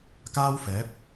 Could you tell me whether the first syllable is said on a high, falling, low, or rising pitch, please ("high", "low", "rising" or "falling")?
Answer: high